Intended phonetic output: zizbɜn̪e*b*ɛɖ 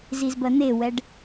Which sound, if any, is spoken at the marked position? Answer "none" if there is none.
w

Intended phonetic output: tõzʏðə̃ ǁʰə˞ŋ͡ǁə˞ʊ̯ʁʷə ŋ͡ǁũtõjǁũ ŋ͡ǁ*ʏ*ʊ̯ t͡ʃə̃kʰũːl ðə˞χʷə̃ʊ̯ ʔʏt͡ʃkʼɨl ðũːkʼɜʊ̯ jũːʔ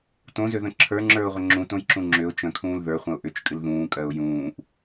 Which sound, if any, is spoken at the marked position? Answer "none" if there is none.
ʏ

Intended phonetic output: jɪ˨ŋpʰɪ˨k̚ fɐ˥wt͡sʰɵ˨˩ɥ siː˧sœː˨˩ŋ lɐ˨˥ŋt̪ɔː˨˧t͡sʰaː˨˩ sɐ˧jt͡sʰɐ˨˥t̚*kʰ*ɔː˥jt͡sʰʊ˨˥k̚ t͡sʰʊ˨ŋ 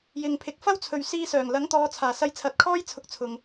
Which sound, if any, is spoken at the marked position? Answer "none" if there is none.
kʰ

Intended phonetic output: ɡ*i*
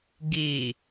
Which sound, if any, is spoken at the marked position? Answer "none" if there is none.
i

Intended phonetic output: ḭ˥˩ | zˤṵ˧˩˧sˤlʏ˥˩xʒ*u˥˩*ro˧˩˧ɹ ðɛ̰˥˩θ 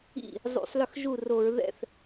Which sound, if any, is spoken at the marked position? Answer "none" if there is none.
u˥˩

